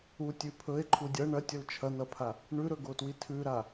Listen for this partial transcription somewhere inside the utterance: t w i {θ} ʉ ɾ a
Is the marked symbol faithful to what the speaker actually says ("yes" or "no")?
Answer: no